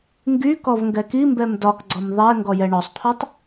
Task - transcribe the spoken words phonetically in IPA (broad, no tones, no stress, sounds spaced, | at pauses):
ŋ ɡ y k ɔ v ŋ ɡ ɛ k i m b ɛ m d ɒ k ɡ͡ǀ ɔ m ðˤ ɛ ŋ ɡ ɔ j ɛ ɳ ɔ sˤ t̪ʰ ɔ tˤ